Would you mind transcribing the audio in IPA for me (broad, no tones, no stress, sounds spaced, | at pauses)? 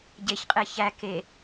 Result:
ɟ e ç qʼ e ç æ k e